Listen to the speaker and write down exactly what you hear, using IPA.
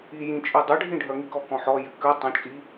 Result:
i j ĩ t͡ʃʼ ʉ dˤ ʏ ɖʱ ĩ ɖʱ œ ŋ i k ɔ k ɔ̃ ħ ɔ j ʏ k ʉ tˤ œ̃ t͡ʃʼ i

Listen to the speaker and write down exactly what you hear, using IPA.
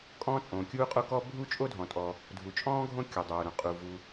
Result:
kʼ ɔ̃ː˥ t͡sʼ õː˩ kʲ uː˥ qʼ o˥ k ɔː˥ bʱ u˥ t͡ʃʼ o˥ dʱ ɔ̃˩ tʼ ɔ˩ | dʱ u˩ t͡ʃʼ ɔ̃ː˥ ɡʱ õ˥ kʲ o˩ dˤ oː˩ ɾ õ˩ qʼ u˩ v u˩

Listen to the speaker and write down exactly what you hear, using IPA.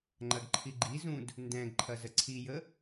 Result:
ŋ͡ǃ ɐ ɡ ǃʰ i ɡ͡ǃ i z ũ d | n d ɛ̃ ɡ ǃʰ ɐ z ə ǀʰ i j ə

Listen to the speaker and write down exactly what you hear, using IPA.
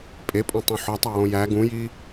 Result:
pʼ e pʼ õ tˤ ũ ħ ɒ tˤ æ w õ j æ ɡ ũ j i

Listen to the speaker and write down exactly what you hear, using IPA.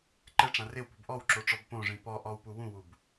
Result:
ǃ ɛ ʈ͡ʂ ã r ɪ w p ṳ b ʔ ɔ w ǁ o ʈ͡ʂ ɔ b p õ ʐ ĩ p ɔ ʔ ɔ w p u w ũ w u b

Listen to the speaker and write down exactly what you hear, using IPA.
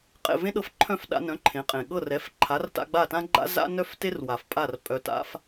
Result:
qʼ ḛ˥˩ v ẽ˥ ɗ ɤ˧ f ǃʰ œ̃˥˩ f ɗ a̰˧ n œ̃˩˥ ǃʰ ẽ˩˥ qʼ ẽ˩ ɠ ɤ˥˩ r ɛ˩˥ f ǃʰ a˩˥ r t a̰˧ ɡ͡b a˥˩ t ã˥ ɡ͡ǃ a̰˥ z a̰˥ n œ˥ f t e˥ r w a˩ f pʼ a˥˩ r pʼ œ˧ t a̰˥ f

